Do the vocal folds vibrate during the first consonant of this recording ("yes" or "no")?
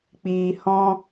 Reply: no